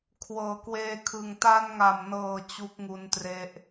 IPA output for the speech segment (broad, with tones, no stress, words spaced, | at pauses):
kʰwɤː˩˦kweː˧kʰɯ˨˩ŋ ta˧nŋa˨˩mnɤː˨˩ t͡ɕu˦˥k̚ŋu˧ntre˦˥ʔ